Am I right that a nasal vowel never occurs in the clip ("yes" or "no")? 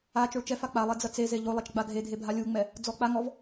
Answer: yes